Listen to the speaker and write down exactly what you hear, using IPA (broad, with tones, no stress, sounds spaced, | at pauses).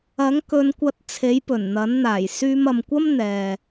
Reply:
ɐ˨˥ ŋ k ɵ˨˧ n kʷ ɐ˧ t̚ t͡sʰ e˨˥ j p ɵ˨˩ n n̪ ɐ˨˥ n n̪ aː˨˩ j s yː˧ m ɐ˨ m kʷ ɐ˥ m n̪ ɛː˨